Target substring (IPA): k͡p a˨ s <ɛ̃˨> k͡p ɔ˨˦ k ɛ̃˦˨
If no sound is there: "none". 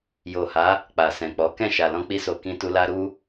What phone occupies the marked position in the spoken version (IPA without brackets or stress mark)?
ɛ̃˨